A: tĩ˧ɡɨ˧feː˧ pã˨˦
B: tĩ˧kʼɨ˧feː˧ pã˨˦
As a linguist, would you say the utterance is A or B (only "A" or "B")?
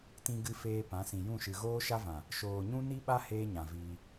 A